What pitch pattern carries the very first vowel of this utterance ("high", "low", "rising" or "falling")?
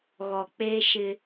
low